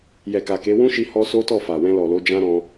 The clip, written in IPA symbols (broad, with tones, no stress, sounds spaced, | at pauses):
j ɛ˨ k a˨ k e˨˦ w ũ˦ ʃ i˧ h ɔ˧ s o˦ t ɔ˦˨ f a˨ w ɛ̃˧ l ɔ˨ l o˨˦ d͡ʒ ã˦ ɾ ɔ̃˦